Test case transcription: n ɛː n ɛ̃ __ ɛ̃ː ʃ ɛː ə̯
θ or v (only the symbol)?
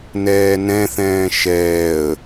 θ